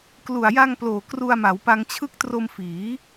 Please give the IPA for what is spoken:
k l u˨˩ a̯ j a˧ ŋ p l oː˨˩ k r u˧ a̯ m a˩˦ w p a˧ ŋ t͡ɕʰ ɯ˦˥ k̚ t r o˧ m f iː˩˦

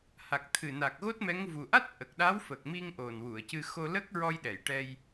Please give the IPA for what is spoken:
h a˨˩ k̚ t̪ʰ ɨ˨˩ n a˨˩ k̚ ɣ o˦˥ t̚ m ɛ˧˥ ŋ v u˨˩ ʔ a˦˥ t̚ ʔ ə˨˩ k̚ ɗ a˧˥ w f ə˨˩ k̚ m i˧ ŋ ʔ o˨˩ n w u˨˩˨ ə̯ c ɨ˧ x o˧ l ə˦˥ k̚ ɹ ɔ˧ j ɗ ɛ˨˩˨ j ʈ ɛ˧ j

